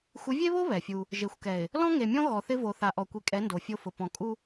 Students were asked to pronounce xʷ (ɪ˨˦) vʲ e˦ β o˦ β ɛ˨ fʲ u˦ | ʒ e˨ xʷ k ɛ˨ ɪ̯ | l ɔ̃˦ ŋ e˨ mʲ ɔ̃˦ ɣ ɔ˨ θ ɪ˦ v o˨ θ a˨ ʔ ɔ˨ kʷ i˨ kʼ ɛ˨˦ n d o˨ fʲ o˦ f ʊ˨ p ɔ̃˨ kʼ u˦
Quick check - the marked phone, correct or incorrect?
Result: correct